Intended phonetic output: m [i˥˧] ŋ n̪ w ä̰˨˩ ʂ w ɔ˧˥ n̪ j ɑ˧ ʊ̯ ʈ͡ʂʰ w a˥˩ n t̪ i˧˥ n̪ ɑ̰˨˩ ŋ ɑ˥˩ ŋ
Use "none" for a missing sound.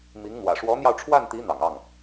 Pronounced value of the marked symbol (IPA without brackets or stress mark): i˧˥